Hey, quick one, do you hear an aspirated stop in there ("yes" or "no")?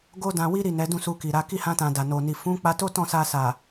no